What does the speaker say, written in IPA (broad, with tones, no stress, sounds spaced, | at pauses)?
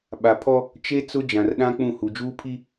ɓ a˨ pʰ ɔ˦ | t͡ʃ e˦ t͡s ʊ˦ d͡ʒ ã˨ r ɗ ã˦ k͡p ũ˦˨ h u˨ d͡ʒ uː˦ pʰ i˦